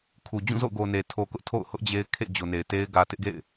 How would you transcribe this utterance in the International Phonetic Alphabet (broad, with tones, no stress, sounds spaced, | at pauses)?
kʰ u˨ d͡ʑ ũ˦˨ z o̰˦˨ ʊ̯ ɡ o˨ n e˨ tʰ o˨ k ʊ˦ ʔ tʰ o̰˦˨ ʊ̯ h ʊ˦ ʔ d͡ʑ e˦ ɪ̯ kʰ ḛ˦˨ d͡ʑ o˨ n e˨ ɪ̯ t e˦ ɪ̯ ɡ ä˨ t ɪ˦ ʔ ɡ ḛ˦˨ ɪ̯